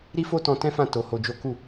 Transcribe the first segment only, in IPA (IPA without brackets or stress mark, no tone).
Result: ɾ